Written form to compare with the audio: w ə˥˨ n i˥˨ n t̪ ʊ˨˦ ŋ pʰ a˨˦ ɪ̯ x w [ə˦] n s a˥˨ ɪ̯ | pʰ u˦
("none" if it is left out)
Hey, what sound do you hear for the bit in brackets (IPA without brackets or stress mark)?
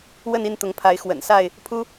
ə̰˨˩